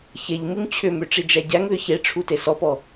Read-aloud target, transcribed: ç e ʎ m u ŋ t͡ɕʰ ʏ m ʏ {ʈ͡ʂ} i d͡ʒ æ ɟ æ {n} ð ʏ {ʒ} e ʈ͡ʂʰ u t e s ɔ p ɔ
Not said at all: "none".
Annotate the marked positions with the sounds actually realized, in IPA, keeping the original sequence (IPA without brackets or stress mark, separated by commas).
ʈ͡ʂ, ŋ, ç